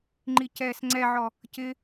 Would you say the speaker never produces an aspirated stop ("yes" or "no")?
yes